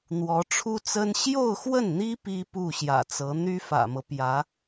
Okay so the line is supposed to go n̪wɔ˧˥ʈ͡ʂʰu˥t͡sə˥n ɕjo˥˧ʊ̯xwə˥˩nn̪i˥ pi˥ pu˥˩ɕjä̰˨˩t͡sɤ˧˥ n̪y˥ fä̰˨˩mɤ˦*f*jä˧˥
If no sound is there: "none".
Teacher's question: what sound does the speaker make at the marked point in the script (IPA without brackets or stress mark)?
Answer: p